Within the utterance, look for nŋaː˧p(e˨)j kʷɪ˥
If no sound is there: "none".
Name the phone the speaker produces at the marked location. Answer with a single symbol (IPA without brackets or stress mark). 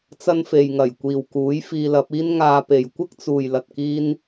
e˨